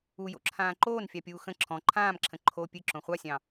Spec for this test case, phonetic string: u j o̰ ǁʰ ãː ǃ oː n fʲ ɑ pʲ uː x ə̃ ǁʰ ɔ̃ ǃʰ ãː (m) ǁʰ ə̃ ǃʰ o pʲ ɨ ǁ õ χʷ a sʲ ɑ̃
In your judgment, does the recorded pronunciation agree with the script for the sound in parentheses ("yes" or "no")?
yes